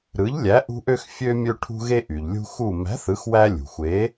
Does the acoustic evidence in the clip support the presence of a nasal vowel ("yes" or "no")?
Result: no